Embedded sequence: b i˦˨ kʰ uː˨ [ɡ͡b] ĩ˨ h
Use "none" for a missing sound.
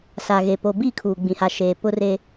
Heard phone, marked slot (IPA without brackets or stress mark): ɡ͡b